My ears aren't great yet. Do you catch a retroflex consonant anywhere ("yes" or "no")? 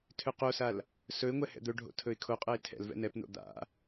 yes